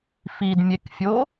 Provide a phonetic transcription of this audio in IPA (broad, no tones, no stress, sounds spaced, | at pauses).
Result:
f i d mʲ e k fʲ o